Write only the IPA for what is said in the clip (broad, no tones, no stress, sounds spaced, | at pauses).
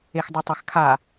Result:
e x dˤ u tˤ a x kʰ a